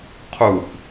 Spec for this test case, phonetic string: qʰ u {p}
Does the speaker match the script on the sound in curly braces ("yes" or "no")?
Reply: yes